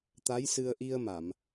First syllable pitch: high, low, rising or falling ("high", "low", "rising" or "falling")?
rising